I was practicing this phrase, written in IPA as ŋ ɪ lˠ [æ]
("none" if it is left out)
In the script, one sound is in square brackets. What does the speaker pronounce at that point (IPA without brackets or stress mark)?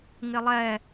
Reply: ɛ